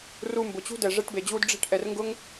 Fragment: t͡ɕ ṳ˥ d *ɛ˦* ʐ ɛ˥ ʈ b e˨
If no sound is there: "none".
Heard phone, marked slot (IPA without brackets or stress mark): ɛ˨